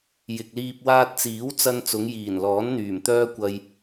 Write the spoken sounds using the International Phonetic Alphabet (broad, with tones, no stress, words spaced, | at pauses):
jɪ˨k̚liː˧p̚ waː˧t̚t͡siː˨˥wt͡sɐ˧n t͡sʊ˨˧ŋjiː˨˩nlɔː˨˥nn̪yː˨˩m t̪œː˥kʷɐ˧j